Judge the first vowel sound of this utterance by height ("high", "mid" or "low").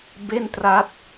mid